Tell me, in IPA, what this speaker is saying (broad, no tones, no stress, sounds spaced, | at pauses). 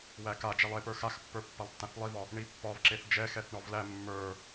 w æ k a d͡ʒ ɛ lˠ e p ə˞ x a x pː ə˞ pː a lˠ tː ã θ lˠ i v ɒ | ɳ i pː ɒ v ǁ e θ d͡ʒ ɛ x ɛ θ ɳ ɒ v l æ mː ə˞